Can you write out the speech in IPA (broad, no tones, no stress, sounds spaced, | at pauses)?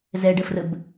z ɛ ɖ ə f r ə b